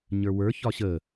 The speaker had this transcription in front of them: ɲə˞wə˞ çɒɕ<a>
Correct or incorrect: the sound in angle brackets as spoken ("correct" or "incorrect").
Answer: incorrect